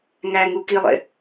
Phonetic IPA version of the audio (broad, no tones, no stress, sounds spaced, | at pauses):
ŋ æ ŋ u k i lˠ ḛ